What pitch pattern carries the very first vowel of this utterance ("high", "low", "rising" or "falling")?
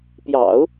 low